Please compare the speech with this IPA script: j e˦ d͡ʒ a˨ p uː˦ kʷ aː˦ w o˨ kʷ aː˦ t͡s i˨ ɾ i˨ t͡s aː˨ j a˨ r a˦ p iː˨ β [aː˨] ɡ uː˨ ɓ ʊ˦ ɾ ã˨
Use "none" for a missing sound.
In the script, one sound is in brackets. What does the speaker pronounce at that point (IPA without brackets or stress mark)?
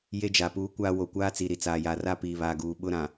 aː˨